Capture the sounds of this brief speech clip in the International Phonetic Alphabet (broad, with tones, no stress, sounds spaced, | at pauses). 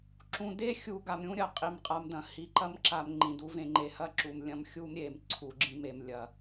ǁ ũ˨ d e˦ xʲ u˨ ɡ a˨ m ɾʲ ũ˦ ɾʲ ɐ˨ qʼ i˨ m qʼ a˨ m d ɐ̃˨˦ h i˨ ǃ ɐ˦ m ǁ a˨ m ŋ͡ǃ ĩ˨ d u˦ v ẽ˨ ŋ͡ǃ e˨ h ɐ˦ ǁ u˨ m lʲ ɐ̃˦ m xʲ u˦ m ɾʲ e˨ m ǀʰ u˨ ɡ͡ǁ ĩ˦ m e˨ m lʲ ɐ˨